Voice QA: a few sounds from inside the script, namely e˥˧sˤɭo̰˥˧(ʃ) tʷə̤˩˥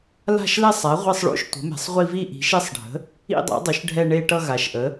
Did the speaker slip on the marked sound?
no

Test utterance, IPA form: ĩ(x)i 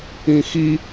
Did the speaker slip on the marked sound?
no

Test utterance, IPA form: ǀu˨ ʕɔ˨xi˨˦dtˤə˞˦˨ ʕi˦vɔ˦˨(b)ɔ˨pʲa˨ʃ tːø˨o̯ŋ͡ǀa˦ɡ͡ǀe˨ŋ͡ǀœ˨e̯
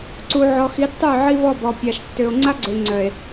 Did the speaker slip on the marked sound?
no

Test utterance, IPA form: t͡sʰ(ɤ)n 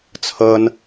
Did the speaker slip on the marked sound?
no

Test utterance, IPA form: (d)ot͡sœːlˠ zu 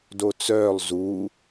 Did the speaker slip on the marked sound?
no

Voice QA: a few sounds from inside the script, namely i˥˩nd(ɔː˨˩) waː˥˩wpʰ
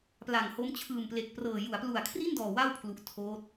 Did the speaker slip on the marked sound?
no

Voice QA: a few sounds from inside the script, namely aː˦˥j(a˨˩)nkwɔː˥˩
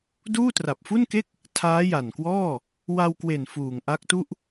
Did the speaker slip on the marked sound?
no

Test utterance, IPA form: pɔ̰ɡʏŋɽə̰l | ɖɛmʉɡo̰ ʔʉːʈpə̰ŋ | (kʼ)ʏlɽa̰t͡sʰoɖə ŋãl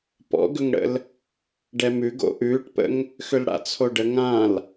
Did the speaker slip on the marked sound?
yes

